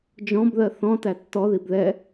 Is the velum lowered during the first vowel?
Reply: yes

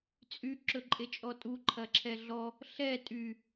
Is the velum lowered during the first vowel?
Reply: no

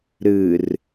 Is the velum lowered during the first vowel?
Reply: no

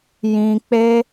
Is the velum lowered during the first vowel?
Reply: yes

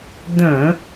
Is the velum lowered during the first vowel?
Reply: yes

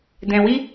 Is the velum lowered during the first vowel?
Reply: yes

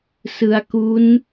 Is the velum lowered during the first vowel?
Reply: no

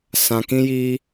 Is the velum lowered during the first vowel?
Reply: yes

